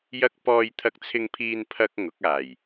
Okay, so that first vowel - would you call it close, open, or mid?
open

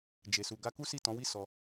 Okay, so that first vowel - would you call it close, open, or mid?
mid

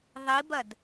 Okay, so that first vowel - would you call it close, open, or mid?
close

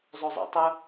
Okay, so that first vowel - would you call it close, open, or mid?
mid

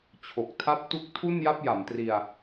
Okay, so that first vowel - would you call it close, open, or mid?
mid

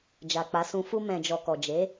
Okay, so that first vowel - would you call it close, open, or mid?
open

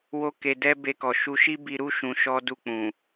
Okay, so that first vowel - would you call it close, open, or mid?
mid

